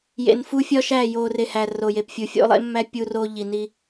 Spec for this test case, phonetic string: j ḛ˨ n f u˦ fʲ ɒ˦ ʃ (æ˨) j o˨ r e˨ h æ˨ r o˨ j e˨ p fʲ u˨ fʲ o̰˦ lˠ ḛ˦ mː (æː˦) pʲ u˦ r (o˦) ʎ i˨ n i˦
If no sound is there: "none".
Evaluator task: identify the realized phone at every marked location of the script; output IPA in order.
æ˦˨, æ˦, o˦

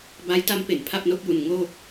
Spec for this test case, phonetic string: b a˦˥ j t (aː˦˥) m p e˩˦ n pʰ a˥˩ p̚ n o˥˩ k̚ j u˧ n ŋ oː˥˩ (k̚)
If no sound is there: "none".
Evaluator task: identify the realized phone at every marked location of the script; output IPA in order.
a˦˥, k̚

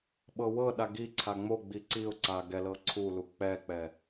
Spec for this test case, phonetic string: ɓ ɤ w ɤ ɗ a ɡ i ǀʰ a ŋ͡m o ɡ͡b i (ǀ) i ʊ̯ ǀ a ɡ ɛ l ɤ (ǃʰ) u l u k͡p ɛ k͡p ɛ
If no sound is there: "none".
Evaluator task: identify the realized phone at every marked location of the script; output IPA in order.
ǀ, ǀʰ

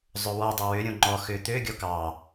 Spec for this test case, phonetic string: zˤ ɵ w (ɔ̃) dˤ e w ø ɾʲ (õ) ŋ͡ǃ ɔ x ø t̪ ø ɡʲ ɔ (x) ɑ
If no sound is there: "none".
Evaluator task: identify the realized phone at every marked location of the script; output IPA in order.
ɔ, õ, k

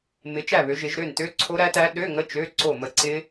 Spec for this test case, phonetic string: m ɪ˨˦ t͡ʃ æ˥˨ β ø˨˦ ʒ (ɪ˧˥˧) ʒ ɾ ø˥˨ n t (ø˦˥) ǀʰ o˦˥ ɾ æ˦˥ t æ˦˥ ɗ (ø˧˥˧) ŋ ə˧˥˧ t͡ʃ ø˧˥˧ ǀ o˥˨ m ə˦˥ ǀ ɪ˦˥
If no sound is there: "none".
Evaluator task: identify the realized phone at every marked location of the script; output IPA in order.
ɪ˨˦, ø˦˥, ø˧˥˧

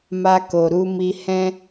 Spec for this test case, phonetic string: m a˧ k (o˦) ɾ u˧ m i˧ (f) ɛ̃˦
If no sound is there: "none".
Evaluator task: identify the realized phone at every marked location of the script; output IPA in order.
o˨, h

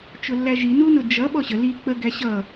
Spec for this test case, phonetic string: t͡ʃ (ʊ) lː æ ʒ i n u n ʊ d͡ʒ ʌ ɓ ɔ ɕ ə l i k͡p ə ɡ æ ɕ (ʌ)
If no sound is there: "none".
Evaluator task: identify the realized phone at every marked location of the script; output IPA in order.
ʊ, ʌ

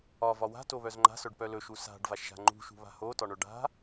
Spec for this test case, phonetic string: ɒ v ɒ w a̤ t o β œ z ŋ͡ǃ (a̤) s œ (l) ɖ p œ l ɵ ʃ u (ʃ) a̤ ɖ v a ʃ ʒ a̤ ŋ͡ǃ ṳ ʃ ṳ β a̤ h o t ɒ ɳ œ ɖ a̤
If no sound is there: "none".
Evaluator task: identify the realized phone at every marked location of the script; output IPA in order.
a̤, none, s

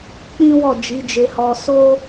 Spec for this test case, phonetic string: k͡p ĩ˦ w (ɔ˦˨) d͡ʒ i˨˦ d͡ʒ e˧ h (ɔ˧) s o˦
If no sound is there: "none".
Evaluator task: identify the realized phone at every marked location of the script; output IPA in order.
ɔ˦˨, ɔ˧

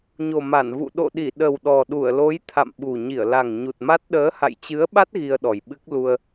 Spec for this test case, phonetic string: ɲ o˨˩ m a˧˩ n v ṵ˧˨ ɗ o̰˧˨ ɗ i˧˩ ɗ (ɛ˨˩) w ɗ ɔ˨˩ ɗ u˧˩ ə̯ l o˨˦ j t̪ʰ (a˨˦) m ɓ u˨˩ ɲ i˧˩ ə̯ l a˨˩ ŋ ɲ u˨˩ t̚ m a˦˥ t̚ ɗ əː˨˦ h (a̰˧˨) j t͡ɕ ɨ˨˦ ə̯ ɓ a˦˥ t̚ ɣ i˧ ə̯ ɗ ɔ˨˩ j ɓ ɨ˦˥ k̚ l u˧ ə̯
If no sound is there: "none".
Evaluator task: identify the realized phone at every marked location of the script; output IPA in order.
ə˨˩, a̰˧˨, a̰˧˨

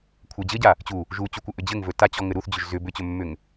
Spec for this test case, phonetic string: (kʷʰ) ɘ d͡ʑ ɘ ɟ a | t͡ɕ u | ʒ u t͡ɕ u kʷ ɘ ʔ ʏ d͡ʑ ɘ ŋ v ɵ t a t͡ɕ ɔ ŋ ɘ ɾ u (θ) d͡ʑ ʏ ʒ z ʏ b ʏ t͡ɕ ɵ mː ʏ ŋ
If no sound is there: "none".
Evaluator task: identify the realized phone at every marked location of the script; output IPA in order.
kʷʰ, θ

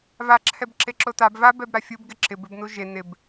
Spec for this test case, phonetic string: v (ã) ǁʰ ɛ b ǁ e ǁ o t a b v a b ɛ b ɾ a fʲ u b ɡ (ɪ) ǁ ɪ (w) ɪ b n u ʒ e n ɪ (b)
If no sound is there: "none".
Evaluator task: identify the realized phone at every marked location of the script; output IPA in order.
a, ɪ, b, b

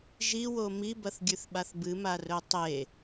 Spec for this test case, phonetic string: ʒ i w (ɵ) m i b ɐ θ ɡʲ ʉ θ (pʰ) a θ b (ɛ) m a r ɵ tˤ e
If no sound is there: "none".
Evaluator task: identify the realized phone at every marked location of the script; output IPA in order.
o, ɓ, ɨ

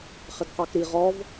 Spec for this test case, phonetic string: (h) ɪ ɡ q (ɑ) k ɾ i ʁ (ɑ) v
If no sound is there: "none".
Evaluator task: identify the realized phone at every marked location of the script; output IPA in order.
χ, ɑ, ɔ

